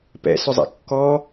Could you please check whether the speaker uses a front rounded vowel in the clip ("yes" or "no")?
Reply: yes